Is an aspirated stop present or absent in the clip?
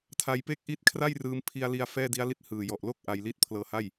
present